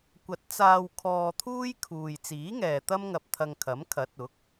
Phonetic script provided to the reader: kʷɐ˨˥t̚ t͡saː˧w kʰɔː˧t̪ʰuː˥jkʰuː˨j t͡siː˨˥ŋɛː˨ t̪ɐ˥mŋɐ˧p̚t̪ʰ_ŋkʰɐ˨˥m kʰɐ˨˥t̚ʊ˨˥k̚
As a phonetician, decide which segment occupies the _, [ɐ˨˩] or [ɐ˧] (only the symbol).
ɐ˧